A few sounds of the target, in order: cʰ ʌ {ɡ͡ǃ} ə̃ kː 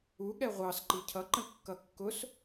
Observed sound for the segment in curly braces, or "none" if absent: ǃ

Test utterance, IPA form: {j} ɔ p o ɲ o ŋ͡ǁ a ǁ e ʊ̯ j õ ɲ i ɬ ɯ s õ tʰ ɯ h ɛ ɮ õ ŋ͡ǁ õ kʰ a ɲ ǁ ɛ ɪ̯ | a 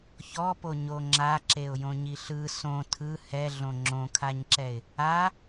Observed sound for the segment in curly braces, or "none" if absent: ç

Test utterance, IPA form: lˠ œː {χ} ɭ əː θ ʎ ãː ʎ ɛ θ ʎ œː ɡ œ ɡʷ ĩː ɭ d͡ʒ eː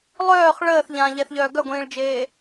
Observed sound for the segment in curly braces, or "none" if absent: χ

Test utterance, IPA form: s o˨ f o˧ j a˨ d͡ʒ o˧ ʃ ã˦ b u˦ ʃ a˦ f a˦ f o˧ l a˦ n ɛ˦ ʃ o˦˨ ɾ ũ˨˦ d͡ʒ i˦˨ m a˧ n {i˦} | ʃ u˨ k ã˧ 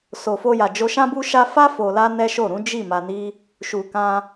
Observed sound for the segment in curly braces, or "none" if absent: i˦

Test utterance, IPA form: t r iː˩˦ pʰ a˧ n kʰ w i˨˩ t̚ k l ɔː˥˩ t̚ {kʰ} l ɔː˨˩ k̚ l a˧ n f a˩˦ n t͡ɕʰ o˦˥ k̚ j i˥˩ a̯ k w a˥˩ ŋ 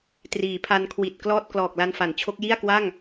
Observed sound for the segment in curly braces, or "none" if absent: k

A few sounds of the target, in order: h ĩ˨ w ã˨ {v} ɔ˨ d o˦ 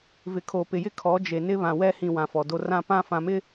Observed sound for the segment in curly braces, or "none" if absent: f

